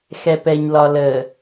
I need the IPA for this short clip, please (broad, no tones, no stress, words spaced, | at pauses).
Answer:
xɛpɛɲlɒlə